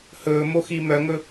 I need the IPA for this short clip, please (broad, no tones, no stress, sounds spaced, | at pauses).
h ɵː m o x i m œ ŋ ɵ